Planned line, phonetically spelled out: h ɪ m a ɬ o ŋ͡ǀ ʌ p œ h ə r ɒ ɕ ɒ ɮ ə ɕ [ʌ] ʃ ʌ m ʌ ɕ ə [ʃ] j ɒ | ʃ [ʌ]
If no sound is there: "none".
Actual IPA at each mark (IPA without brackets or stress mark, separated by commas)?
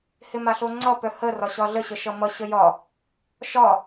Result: ə, none, ɒ